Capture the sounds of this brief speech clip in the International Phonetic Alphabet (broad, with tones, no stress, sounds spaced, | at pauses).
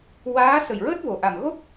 w aː˧˥ s ə˨˩ j ɹ əː˦˥ t̚ v o˨˩ ʔ a˨˩ m ɣ o˦˥ k̚